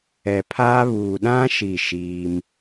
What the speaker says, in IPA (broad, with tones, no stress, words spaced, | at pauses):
ɛ˨pʰaː˦ βuː˨ɗã˦ ʃi˦˨ʃiː˦m